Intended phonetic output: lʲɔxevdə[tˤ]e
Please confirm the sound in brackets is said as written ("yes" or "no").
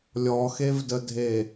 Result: no